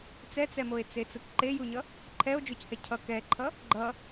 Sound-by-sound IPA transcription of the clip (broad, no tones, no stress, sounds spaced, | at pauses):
t͡s ɛ t͡s ɛ m o e̯ t͡s e t͡s ɯ k ǃ e j u ɲ ʌ | ǃʰ ɛ o̯ d͡ʒ o c h ɛ cʰ ʌ k ɛ ǃʰ ʌ | ɡ͡ǃ ʌ